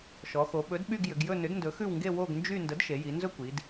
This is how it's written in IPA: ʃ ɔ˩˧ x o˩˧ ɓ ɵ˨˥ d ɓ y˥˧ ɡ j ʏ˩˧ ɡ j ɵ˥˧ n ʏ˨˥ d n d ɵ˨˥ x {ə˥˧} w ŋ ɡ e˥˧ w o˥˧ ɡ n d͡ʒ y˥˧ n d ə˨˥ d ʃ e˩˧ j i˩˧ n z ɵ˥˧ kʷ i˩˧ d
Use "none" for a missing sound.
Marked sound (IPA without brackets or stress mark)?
ʉ˥˧